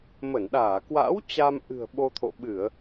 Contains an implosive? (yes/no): yes